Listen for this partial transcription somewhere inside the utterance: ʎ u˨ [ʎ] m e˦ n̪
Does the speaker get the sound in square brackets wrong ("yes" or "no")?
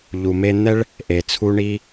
yes